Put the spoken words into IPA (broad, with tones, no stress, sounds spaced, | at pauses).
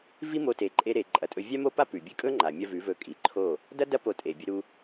v i˦ m o˧ t e˧ ǃʼ e˦ ɾ e˧ ǃʼ ɐ˧ tʼ ɵ˦ vʲ a˦ m o˦ p a˦ p ʉ˨ bʲ ɨ˦ kʼ ɵ˦ ŋ͡ǃ a˨ mʲ ɐ˧ v ʉ˨˦ v ɵ˧ kʼ i˨ ǃʰ o˦˨ | d ɐ˦ d ɐ˦ p o˧ tʼ e˨ bʲ ɵ˧ ɾ u˧